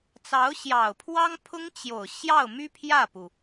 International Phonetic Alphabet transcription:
t͡s ɑ˧˥ ʊ̯ ɕ j ɑ˨˩ ʊ̯ pʰ w ɑ˥ ŋ pʰ ʊ˥ ŋ t͡ɕ j o˨˩ ʊ̯ ɕ j ɑ˥˩ ʊ̯ m y˥ pʰ j ä˥˩ p u˩

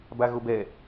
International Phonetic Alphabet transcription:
b a ɣ o b ɛ

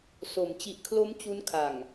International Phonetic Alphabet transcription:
s o˩˦ m t͡ɕ i˨˩ ʔ kʰ l o˦˥ m t͡ɕ u˦˥ n kʰ a˨˩ ŋ

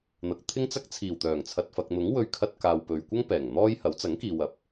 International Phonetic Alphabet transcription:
n̪ ɐ˨ k̚ t̪ʰ ɪ˥ ŋ t͡s ɐ˥ k̚ t͡sʰ iː˨˩ w t̪ œː˨˩ ŋ t͡sʰ ɐ˨ t̚ f ɐ˨ k̚ n̪ ʊ˨˥ ŋ w ɵ˧ ɥ kʰ ɐ˧ t̚ k aː˨ w p ɵ˨ ɥ kʷ ɐ˥ ŋ p ɛː˨˩ ŋ n̪ ɔː˥ j h ɐ˨˥ w t͡s ɐ˨˥ ŋ k iː˨ w ɐ˨˥ p̚

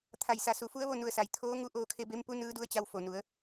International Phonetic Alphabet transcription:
t̪ʰ a˧˩ j s a˧˩ s u˧˩ f u˧˥ ə̯ ʋ o˥˨ n u˧˩ ə̯ s a˩ j t̪ʰ oː˧˥ ŋ u˧˥ ʔ oː˧ kʰ e˧ b e˧˥ m p u˧˥ n ɯː˧˥ d u˧˥ ə̯ t͡ɕ a˧ w f o˩ n u˩˧ ə̯

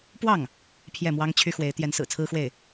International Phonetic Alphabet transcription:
p w ɑ˥˩ ŋ | pʰ j ɛ˥˩ m w ɑ˥ ŋ t͡ɕʰ y˥ x w e˧˥ ɪ̯ t̪ j ɛ˧˥ n s ɹ̩˨˩ t͡sʰ ɹ̩˥ x w e˥˩ ɪ̯

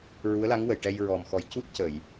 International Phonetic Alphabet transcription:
ɹ u˧˥ ə̯ l a˧˥ ŋ w ə˨˩˨ j ʈ ɛ˧ j ɹ ɔ˨˩ m x ɔ˨˩˦ j c u˦˥ t̚ c ə˨˩˨ j

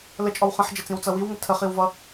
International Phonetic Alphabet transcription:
l ə t͡ʃʼ ɔ w χ ə̃ ħ d͡ʒ ə t͡s ĩ w t͡s ʌ w i w ŋ ə tʰ ə χ i w v ʌ

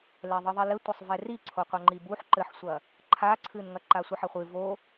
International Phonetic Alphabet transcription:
l ɛ ðˤ ɨ ðˤ i l ɘ tʷ ɐ sˤ v ɛ r i ǀʰ o qʷ ɐ ŋ͡ǃ i b u ħ ǃ ɘ ħ sʷ ɐ | ǃʰ a ǀʰ ɨ n ŋ ɐ ǃ a sʷ ɨ ħ ɐ χʷ ɨ v o

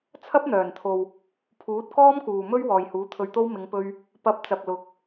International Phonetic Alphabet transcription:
t͡sʰ ɐ˥ p̚ n̪ œː˨˩ n t̪ʰ o˨ w | pʰ uː˨˥ t̚ k ɔː˥ m k uː˨ m ɵ˥ ɥ w ɔː˨ j h uː˨˥ t̪ʰ ɵ˧ ɥ t̪ o˥ w m ɪ˨˧ ŋ p ɵ˧ ɥ | p ɐ˨˥ p̚ t͡s ɐ˨ p̚ l ʊ˨˥ k̚

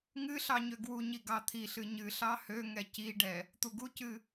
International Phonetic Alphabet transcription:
ŋ ɨ ɬ ɑ ɲ ø ɡ w u ɲ i ɡ ɑ t̪ʰ i ɬ ɨ ɲ ɨ ɬ ɑ h ø ŋ ɛ c i ɖ ɛ | t̪ u ɡ u c ɨ

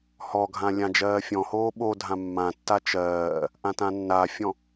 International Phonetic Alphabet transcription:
h ɔ ɡʱ ã lʲ ã d͡ʒ ɜː fʲ ɔ̃ h oː ɓ o dʱ ã mː ã tː a t͡ʃ ɜː | ʔ ã t ã nː a fʲ ɔ̃

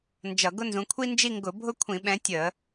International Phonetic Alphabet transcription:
n d͡ʒ ʌ˧˩˧ ɡ ʊ˥ n z ũ˨˦ kʷʰ i˥ n d͡ʒ i˥˧ ŋ ɡ ʊ˧˩˧ bʱ ʊ˥ kʷʰ ĩ˧˩˧ ɓ ɛ̃˨˦ tʲ ə˧˩˧

